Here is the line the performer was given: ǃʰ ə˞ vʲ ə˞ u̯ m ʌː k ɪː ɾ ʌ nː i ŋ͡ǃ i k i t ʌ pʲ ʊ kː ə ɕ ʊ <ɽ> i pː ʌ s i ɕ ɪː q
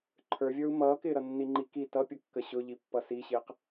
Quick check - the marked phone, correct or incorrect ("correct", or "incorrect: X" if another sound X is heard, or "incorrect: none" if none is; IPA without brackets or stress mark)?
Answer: incorrect: ʎ